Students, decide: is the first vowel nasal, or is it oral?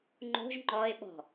oral